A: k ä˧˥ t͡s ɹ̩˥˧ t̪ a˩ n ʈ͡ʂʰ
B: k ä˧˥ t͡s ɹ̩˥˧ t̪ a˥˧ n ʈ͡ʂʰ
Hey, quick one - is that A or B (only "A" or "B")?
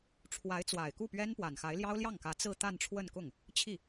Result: B